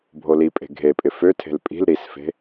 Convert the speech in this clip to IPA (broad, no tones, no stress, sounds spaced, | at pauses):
bʱ o l i pʼ e̤ ɡʱ e pʼ ɪ f ø tʰ e̤ l pʼ i̤ l ɾ i s f e̤